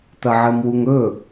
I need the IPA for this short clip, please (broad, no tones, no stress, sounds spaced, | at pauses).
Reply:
t̪ ɐ ʕ ɘ m w u ŋ ɵ